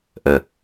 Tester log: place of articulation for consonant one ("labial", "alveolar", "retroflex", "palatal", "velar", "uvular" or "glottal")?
glottal